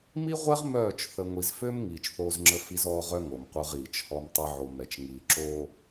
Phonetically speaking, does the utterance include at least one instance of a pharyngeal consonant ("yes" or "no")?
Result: yes